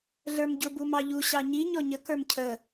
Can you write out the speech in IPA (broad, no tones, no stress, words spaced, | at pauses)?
ɮə˞mɟʊ bumɑʎu ɕɑɲi ɲɔɲə kə˞mcʰə